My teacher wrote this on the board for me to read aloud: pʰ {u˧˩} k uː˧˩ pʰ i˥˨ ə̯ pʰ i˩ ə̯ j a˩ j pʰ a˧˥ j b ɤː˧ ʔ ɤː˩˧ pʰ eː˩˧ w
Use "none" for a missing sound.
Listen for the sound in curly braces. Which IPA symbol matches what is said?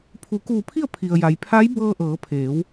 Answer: u˩˧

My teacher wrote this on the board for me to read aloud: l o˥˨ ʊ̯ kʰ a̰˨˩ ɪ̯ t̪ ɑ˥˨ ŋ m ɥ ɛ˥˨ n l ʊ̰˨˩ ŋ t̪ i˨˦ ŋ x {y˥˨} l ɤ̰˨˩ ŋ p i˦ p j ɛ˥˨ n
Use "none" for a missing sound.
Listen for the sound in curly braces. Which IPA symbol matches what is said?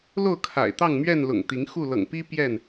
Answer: u˥˨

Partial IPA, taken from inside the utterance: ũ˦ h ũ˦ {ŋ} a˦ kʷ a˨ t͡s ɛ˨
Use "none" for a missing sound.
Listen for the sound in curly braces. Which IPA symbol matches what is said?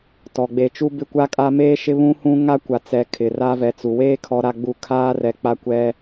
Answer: ŋ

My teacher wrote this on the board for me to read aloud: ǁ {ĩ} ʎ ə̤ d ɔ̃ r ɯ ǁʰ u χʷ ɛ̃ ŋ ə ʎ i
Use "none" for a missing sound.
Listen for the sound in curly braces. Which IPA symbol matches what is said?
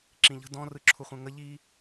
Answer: ĩ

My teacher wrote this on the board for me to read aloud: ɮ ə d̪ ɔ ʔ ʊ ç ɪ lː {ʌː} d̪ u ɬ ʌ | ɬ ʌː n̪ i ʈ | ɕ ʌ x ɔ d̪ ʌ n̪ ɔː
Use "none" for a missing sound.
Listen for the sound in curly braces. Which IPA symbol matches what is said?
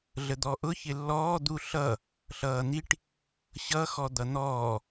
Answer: ɔː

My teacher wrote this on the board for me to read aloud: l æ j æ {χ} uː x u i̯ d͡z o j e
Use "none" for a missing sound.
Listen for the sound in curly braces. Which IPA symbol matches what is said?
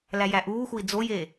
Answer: ʔ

